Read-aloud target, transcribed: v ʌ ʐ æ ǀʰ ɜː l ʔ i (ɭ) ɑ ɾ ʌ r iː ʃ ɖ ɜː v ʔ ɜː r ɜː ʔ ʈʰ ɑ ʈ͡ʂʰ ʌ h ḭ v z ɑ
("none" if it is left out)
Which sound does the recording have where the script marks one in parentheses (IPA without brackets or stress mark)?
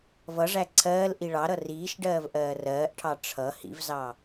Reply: ɭ